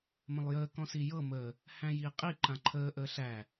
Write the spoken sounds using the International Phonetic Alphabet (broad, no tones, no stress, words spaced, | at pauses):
mə̃lˠjəː kɔ̃sijɤ mə | hæ̃jiːqʼi ǃãǃʰəː ʔəːɬæ